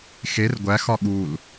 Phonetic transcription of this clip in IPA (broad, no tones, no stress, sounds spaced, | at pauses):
x e r ɡʷ æ x ɒ ɠ u l